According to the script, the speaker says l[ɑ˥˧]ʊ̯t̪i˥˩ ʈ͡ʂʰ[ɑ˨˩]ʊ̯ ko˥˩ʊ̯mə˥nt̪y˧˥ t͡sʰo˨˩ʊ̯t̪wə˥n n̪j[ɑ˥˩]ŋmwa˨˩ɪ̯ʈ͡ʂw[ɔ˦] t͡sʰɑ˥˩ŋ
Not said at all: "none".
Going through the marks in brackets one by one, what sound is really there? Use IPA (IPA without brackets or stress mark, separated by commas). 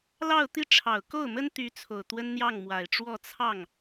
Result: ɑ˥˧, ɑ˨˩, ɑ˥˩, ɔ˥˧